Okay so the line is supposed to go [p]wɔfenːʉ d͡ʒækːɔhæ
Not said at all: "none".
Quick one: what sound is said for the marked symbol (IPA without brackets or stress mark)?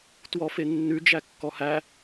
t